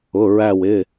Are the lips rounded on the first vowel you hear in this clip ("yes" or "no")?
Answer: yes